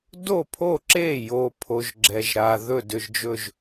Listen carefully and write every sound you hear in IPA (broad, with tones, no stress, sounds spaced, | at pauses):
d o˥˩ pʰ o˥˩ ǁ eː˥˩ j oː˨ pʰ o˨ ʒ ɡ͡ǁ ɛ˨ ʒ ɾ aː˨ ð ɵ˥˩ d ʏ˨ ʒ d͡ʒ ɵ˥˩ ʒ